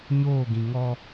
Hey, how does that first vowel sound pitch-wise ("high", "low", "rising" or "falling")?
falling